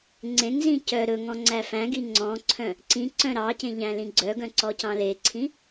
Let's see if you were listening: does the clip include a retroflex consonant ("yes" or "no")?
no